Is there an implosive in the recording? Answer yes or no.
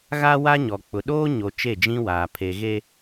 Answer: yes